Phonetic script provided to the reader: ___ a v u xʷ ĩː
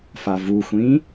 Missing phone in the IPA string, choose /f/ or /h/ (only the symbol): f